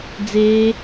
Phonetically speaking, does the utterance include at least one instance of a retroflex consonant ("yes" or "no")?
no